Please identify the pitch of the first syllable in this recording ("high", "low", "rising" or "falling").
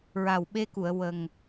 low